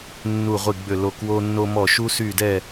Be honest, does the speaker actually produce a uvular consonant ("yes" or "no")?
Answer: yes